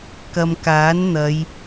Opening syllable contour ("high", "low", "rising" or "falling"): low